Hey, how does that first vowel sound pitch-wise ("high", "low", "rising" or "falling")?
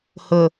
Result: low